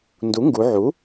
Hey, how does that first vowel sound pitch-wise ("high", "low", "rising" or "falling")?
rising